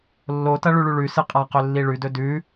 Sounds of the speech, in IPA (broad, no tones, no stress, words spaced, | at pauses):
lːotɐ ɭʉɭʉɭʉsɨ qʼaqɵ lːiɭʉdɵ dʉ